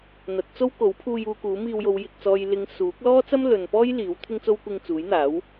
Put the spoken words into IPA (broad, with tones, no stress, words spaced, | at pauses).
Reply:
n̪ɐ˨˥t̚t͡so˥w ko˨˥wpʰuː˧juː˧ kuː˨˥miː˧wjo˨˧w jɪ˨k̚t͡sɔː˨jlɪ˨˧ŋ suː˨˥k̚lɔː˥t͡sɐ˥m lɵ˨npɔː˥j liː˨˥wt̪ʰɪ˥ŋt͡so˥w kʷɪ˧ŋt͡suː˨˥jn̪aː˨˥w